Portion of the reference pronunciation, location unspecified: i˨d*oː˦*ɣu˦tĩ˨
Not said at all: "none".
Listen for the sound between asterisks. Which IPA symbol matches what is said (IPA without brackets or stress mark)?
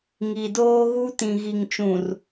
oː˦